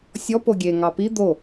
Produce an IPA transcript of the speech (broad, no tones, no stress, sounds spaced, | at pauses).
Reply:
sʲ ɔ p o ɡʲ e ŋ ɑ p i d̪ o